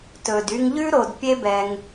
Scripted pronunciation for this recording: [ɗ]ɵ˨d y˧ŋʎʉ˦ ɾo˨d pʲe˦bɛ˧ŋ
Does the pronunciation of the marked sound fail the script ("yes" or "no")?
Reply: yes